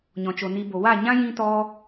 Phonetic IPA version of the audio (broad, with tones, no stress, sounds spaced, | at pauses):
ɲ ɔ̃˨ t͡ʃ o˨ n i˧ b o˨ w a˦˨ ɲ ã˦ j ĩ˧ t ɔ˧